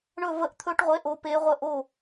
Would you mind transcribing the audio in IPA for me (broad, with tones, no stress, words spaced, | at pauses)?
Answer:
ɳɵ˥˧ və˥˧ʔt̪ʰɵ˦˥ʈʁʷe˧˥˧ʔ o˦˥pe˦˥ʁʷə˥˧ ʔo˥˧